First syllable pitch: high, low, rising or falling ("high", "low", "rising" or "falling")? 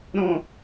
low